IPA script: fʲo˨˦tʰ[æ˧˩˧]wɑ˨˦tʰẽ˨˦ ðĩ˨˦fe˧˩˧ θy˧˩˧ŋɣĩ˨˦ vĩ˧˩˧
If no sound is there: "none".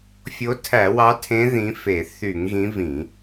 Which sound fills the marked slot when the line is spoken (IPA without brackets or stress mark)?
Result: æ˧˩˧